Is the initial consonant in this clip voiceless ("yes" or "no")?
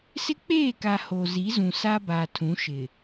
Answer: yes